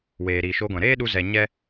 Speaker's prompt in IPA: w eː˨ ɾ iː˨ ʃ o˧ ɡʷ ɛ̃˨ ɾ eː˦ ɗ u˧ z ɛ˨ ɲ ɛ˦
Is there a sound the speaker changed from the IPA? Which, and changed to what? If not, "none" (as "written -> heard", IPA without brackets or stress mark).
none